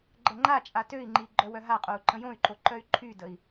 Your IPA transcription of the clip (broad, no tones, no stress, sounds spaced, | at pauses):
ɡ͡ǃ ə ŋ͡ǃ a t͡ʃʼ a t ø i̯ ŋ͡ǃ i ɡ͡ǃ œ w œ ɦ a qʼ o u̯ ǃ ə̃ j õ y̯ ǃ o ǃ œ y̯ ǃʰ y d ə i̯